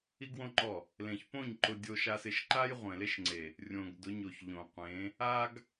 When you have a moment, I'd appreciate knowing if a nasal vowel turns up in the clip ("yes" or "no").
yes